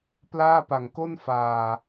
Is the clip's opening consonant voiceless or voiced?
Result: voiceless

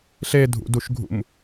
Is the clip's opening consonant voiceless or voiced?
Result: voiceless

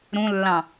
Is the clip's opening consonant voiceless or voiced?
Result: voiced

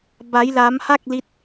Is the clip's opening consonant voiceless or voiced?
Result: voiced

